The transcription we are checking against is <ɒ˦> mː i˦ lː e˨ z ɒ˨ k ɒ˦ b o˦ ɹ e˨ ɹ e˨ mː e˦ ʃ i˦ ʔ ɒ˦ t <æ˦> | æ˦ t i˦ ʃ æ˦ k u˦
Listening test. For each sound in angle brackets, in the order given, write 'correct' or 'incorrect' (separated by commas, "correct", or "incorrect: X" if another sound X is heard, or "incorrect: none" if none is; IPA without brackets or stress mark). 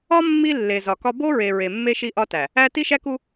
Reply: correct, incorrect: æ˨